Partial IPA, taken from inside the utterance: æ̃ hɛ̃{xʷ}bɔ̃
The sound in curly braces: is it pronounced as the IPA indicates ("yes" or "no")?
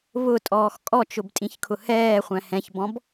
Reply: no